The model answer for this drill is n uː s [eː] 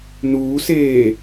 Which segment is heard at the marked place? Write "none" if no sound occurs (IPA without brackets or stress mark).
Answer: eː